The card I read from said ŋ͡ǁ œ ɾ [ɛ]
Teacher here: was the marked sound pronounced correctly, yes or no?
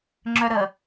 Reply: no